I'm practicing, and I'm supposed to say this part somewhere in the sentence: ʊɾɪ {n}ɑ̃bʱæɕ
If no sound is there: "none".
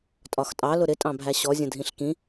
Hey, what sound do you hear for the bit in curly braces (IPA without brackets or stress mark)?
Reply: tʼ